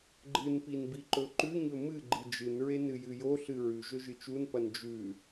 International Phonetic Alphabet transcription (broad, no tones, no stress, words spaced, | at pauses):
ɡ͡ǃɨnpin biǃɵǃʉɲɵ mɨ ɡ͡ǃɨd͡ʒɨnɹe nɨjɨjoɬɨ ɹʉʒɵ ʒɨt͡ʃunpɐn d͡ʒʉ